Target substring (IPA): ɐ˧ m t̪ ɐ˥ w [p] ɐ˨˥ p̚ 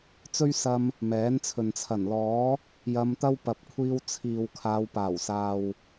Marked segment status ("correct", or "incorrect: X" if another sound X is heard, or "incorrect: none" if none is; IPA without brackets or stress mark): correct